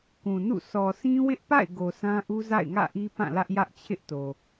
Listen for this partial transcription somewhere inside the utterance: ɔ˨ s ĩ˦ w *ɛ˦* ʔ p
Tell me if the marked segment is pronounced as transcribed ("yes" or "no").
no